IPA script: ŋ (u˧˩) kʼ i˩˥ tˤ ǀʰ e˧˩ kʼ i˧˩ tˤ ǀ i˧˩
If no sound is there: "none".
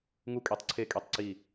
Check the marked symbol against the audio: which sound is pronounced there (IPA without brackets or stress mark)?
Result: u˧˩